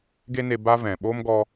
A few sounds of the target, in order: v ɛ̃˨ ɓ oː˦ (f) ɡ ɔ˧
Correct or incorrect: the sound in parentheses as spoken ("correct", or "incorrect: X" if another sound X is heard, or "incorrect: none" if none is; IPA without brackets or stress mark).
incorrect: m